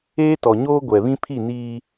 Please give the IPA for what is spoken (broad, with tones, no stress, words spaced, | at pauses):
eː˦tɔ˨ ɲoː˦ ɡʷɛ˨βĩ˦ pʰi˦˨niː˦